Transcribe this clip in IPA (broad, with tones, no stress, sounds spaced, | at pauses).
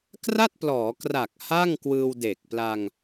k r a˥˩ t̚ p l ɔː˩˦ k r a˨˩ k̚ h a˥˩ ŋ k w ɯː˧ w d eː˨˩ k̚ p l a˧ ŋ